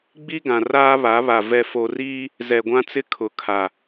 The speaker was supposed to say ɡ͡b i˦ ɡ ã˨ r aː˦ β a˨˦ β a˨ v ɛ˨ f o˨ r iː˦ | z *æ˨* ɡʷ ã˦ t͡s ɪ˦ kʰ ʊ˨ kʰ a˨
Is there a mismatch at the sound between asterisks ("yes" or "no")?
yes